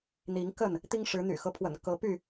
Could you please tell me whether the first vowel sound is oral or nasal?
oral